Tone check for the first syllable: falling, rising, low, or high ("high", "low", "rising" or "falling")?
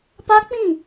high